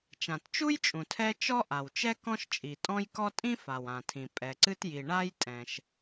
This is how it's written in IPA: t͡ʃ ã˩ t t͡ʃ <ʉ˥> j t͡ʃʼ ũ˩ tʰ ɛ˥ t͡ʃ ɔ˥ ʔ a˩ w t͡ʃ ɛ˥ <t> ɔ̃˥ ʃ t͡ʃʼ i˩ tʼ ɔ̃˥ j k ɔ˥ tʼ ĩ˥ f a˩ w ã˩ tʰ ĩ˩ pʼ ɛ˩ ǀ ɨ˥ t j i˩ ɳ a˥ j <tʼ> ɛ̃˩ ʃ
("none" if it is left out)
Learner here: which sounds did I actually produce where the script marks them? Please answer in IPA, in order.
u˥, k, tʼ

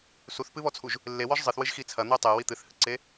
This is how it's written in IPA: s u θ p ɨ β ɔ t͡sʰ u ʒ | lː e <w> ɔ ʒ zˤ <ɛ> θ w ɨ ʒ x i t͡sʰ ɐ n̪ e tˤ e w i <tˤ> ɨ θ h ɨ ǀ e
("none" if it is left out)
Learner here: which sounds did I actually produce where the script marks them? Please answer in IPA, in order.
w, ɨ, t̪

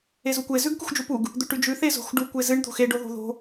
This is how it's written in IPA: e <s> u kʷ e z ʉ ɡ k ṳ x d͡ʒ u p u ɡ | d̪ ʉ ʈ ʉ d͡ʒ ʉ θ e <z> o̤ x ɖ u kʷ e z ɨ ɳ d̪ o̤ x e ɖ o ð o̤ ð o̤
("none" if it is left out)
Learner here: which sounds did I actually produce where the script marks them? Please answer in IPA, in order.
z, z

